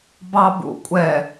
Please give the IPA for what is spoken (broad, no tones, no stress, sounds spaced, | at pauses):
b ɑ b ṵ kʷʼ ɛ